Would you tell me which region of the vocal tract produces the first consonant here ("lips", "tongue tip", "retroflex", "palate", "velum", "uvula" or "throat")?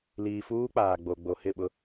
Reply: tongue tip